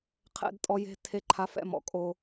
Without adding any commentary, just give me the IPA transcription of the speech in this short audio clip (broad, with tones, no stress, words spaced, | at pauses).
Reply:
qʰɛ̰˦dtʼɔ˦ je̤˦ tʰe˦ǃʰa˦fɛ̰˦mɔ̰˨ kʼo˦